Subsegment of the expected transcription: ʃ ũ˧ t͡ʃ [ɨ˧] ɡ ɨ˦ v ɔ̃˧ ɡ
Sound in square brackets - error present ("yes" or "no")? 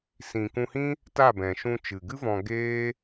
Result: yes